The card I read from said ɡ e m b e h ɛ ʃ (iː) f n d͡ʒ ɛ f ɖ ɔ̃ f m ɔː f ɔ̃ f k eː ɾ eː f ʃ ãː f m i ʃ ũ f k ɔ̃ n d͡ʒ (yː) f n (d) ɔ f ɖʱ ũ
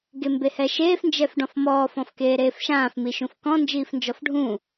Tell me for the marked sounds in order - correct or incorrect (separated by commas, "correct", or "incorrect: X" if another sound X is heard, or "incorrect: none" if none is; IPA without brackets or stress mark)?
incorrect: eː, incorrect: iː, incorrect: d͡ʒ